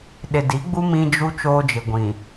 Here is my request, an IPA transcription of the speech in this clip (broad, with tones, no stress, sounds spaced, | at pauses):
ɗ ɪ˨ d i˨˦ ɡ͡b u˦ m ĩ˦ d͡ʒ u˦ t͡ʃ oː˦ d͡ʒ ɪ˨ ɡʷ ĩ˨